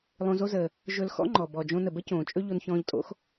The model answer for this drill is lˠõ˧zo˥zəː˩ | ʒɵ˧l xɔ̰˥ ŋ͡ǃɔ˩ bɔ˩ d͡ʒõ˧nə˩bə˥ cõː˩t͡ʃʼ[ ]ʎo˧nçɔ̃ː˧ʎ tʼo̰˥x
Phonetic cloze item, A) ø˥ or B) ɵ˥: B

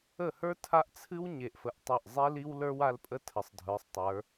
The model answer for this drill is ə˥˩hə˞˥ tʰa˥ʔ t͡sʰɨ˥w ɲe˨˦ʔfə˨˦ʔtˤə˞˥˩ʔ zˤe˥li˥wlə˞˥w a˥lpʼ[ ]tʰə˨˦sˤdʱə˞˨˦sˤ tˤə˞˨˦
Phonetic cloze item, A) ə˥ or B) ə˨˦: A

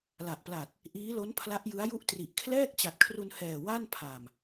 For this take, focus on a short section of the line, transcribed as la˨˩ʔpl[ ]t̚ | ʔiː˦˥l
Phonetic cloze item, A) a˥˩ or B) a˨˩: B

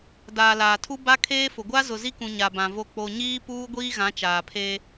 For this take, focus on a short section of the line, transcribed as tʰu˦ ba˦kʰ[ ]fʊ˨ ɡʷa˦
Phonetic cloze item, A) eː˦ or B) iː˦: A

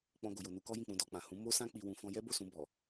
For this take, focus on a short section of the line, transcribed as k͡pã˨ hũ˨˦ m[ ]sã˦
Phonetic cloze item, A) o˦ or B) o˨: A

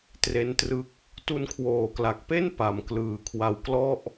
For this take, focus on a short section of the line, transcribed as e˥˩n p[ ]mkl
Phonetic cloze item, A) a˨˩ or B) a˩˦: A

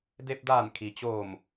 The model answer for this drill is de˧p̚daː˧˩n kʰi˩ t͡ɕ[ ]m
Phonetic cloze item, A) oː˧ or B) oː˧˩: B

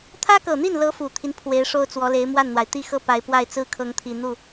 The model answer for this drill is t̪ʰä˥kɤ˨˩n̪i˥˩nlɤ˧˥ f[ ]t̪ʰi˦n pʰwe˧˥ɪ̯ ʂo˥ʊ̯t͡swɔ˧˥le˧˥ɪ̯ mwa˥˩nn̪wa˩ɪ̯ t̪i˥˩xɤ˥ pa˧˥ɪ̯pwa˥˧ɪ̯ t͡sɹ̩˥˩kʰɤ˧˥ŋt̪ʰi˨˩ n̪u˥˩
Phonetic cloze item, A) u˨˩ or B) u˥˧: A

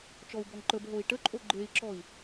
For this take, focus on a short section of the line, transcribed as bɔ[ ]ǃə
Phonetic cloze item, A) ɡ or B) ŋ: B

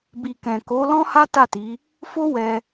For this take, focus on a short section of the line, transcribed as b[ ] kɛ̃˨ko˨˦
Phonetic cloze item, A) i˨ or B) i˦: A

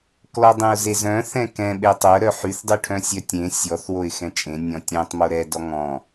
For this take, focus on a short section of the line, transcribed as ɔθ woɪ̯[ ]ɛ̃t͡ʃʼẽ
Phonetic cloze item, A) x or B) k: A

